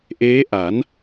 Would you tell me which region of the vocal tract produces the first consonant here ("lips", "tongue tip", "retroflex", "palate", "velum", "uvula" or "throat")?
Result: throat